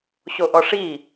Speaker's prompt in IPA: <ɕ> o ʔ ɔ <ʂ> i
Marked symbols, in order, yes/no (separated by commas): yes, yes